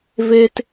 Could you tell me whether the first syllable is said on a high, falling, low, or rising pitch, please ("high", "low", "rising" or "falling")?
high